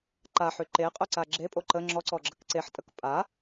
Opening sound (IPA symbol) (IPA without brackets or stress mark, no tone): ǃ